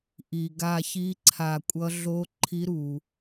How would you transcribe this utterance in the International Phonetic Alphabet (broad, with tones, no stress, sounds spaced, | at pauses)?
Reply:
ʔ i˩ ɡ a˧˩ ç i˧˥ ǀʰ a˧˩ kʷʼ ʌ˧˥ ɮ o˧˥ ǃʰ i˧˥ ɾ u˩